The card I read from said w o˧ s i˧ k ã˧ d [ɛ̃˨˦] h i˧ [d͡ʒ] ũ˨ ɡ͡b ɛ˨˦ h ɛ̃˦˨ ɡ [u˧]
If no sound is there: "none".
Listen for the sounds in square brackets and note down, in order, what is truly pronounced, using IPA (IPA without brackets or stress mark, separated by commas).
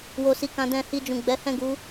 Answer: ɛ̃˧, d͡ʒ, u˨˦